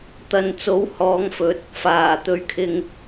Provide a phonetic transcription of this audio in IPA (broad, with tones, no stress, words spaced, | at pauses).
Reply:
t̪ɐ˨nt͡so˨˥w hɔː˨˧ŋfɵ˨˥t̚ | faː˨˩ t̪ɵ˧ɥkʰɪ˧ŋ